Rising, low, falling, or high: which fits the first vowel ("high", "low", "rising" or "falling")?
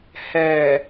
low